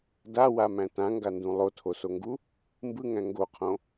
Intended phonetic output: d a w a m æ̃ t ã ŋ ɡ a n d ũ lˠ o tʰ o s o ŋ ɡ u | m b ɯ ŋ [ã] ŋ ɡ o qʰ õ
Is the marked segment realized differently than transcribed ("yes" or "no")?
yes